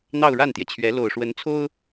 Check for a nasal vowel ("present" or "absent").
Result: absent